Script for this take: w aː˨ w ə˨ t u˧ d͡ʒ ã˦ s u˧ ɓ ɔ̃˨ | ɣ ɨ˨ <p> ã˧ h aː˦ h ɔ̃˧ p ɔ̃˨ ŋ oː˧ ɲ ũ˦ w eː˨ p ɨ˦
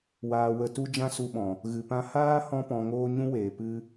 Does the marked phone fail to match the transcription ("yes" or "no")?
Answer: no